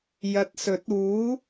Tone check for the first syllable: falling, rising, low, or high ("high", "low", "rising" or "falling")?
low